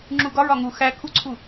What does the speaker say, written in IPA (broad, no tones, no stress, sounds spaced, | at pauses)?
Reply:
ŋ͡ǁ u ɡ ɒ ɹ ɒ ŋ u x æ kʰ u ǀʰ u